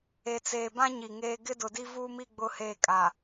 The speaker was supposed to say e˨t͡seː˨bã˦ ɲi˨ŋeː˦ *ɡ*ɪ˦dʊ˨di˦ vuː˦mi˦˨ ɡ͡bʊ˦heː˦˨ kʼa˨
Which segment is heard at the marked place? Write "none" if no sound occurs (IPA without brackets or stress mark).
ɡ